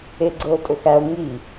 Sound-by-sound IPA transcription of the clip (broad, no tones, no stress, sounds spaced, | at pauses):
e ɡ͡ǀ ɤ o̯ tʼ ɵ x æ o̯ ŋ i